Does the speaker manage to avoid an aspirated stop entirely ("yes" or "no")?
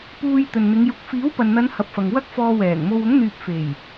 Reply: yes